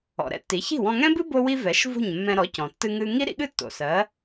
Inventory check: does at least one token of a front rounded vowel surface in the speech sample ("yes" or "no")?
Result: no